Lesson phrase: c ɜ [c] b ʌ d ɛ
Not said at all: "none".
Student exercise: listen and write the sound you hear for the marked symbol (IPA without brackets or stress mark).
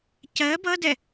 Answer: none